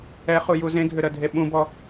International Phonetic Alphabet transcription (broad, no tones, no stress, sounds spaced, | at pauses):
ɛ χ u j u z ẽ ɡʱ ʏ ɾ ə dʱ e ɓ ũ b ɔ